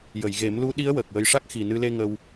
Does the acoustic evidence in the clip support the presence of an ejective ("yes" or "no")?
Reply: no